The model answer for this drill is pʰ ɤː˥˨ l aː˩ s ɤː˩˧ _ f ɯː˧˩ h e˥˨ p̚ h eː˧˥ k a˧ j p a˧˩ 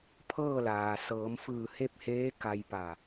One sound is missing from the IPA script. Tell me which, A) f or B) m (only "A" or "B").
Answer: B